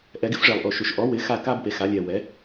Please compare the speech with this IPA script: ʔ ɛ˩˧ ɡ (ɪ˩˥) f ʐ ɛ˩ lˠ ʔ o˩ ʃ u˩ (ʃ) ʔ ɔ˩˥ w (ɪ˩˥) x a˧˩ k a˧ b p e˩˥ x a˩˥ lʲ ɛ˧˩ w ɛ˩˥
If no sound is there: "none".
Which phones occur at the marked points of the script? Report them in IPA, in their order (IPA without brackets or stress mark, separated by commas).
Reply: ɪ˩˥, ʃ, ɪ˩˥